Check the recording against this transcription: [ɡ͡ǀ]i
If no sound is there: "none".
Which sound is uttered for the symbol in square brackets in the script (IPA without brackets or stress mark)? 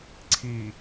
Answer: ǀʰ